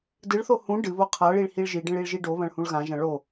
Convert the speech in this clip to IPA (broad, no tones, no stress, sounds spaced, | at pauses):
d ɨ ɭ θ o h ũ ɖ ɨ β o qʰ a ɭ i ɭ h i ɭ ʒ i ɖ ẽ ɭ i ɭ ʒ i ɖ o β ɐ̃ ɭ h ũ ɭ ɣ ã ʒ ɐ̃ ɭ o